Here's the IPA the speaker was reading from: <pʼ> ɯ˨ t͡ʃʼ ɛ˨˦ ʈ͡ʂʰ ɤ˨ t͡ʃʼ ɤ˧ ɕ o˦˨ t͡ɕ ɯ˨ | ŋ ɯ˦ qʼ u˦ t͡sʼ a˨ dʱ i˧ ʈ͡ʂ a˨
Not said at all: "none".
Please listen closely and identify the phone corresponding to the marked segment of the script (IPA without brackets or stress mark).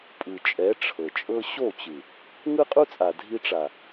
pʼ